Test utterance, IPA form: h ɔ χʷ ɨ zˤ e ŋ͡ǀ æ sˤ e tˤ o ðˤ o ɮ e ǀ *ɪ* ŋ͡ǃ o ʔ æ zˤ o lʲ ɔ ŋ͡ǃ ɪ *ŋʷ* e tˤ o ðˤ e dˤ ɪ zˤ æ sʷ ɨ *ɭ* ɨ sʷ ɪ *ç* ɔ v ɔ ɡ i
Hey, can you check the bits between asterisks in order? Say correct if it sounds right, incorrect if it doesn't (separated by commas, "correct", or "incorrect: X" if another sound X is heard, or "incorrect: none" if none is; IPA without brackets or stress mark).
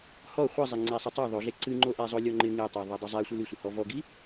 incorrect: ɨ, incorrect: ŋ, incorrect: l, incorrect: h